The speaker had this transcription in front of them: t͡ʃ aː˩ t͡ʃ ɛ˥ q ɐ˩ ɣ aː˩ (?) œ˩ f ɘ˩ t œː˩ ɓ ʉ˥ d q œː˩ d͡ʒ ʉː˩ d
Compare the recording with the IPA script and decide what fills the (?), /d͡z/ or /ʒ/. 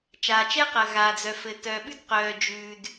d͡z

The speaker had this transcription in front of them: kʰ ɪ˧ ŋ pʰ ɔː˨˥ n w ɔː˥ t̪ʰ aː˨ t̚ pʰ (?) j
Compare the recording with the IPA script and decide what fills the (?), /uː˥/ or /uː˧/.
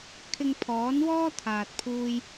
uː˧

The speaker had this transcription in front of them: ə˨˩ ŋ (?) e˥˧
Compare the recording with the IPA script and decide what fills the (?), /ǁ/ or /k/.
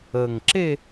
ǁ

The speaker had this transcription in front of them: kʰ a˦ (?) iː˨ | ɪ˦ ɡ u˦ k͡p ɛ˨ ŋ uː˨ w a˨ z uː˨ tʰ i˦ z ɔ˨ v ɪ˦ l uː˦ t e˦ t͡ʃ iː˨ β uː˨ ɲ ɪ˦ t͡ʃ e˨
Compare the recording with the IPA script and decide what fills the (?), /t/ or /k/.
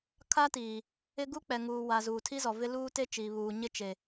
t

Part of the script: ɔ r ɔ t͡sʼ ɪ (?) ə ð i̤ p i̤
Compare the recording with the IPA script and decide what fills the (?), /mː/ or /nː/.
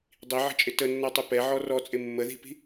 mː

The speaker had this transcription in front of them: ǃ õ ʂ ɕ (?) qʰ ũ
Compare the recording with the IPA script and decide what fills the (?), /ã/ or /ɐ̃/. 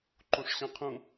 ɐ̃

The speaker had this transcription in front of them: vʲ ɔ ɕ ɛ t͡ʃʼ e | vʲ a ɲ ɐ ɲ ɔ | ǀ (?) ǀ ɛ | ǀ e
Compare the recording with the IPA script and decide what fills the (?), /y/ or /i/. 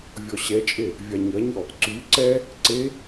y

